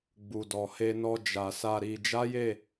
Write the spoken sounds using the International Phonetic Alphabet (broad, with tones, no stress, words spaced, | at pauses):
ɡ͡bu˨dɔ˨he˧nɔ˧ d͡ʒa˨sa˧ ɾi˧ d͡ʒa˦je˦˨